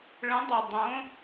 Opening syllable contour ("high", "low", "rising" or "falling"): rising